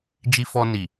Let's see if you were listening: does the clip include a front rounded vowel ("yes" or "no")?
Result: no